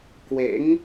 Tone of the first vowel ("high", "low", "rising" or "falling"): rising